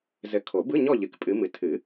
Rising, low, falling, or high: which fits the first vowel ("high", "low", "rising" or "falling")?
rising